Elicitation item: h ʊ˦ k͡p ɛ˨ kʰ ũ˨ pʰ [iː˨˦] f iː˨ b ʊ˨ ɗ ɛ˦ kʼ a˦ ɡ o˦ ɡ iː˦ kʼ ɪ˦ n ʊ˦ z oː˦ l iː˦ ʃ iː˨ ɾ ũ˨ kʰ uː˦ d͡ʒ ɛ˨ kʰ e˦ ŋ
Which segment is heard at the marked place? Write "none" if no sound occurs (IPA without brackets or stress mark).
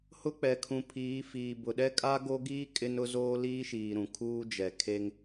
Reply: iː˨˦